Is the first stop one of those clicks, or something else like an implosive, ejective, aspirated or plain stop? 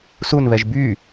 plain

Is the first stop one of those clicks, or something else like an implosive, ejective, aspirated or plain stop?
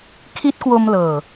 aspirated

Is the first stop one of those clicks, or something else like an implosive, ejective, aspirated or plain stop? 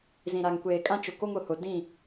plain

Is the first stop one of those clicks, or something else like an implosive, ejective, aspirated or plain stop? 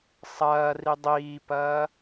plain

